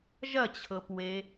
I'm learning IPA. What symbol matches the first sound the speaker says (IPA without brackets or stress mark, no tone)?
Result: ʒ